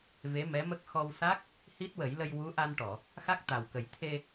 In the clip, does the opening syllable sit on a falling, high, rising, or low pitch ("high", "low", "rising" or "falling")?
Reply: rising